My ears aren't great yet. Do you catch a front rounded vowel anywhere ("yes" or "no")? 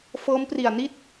no